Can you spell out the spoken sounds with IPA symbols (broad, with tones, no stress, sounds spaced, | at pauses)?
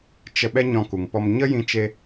t͡ʃ ə˧ ɓ ɛ˦ ɲ ɔ̃˧ k u˨ ŋ p ɔ˧ m ɲ ə˦ j ĩ˧ t͡ʃ e˧